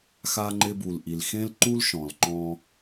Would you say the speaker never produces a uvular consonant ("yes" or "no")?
yes